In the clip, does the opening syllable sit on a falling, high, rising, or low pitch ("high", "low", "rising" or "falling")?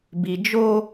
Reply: low